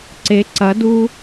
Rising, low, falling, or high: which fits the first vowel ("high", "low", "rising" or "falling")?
rising